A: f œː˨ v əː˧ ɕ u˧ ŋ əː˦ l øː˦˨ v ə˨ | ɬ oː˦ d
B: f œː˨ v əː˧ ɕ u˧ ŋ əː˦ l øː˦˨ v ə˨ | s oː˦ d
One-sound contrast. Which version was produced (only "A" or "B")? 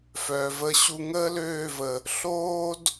A